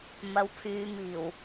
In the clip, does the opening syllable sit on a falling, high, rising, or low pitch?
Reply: rising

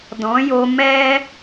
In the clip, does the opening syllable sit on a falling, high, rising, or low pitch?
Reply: rising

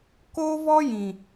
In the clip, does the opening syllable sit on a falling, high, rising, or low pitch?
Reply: high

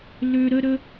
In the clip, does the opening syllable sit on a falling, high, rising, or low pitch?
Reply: low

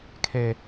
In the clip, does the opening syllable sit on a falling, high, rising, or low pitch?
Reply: low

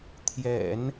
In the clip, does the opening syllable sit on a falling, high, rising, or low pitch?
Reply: low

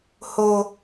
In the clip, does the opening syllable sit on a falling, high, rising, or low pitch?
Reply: high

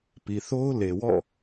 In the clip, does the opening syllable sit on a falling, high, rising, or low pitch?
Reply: low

